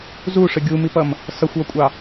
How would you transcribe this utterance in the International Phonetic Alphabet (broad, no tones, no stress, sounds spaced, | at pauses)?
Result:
z u ʂ ə ɡʲ u m i p ʌ m | s ʌ xʷ w ʌ kʷʼ ɑ